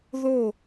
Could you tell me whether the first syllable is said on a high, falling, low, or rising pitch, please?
falling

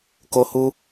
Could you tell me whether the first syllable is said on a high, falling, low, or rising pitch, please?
high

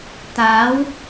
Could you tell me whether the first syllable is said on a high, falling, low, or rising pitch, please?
rising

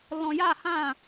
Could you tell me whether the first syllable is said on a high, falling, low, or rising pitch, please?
low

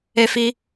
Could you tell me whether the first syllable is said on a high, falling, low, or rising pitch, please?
high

